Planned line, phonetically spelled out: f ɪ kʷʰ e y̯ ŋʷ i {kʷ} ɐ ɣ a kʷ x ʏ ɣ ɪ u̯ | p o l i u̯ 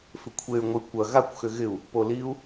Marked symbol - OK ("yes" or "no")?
yes